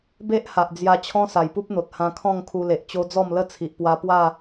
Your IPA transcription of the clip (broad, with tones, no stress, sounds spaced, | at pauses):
b e˦ ʔ h a˨ ʔ d͡z j a˧ t͡ɕʰ ɔ̃˦ s a˨˩ j p u˦ p̚ n̪ o˨ t̚ h ã˧ kʰ ɔ̃˥˧ ŋ kʰ u˧ l e˨ ʔ t͡ɕ o˦ d͡z ɔ˥˧ m l ə˥˧ t͡sʰ i˨ ʔ p w a˧ p w a˥˧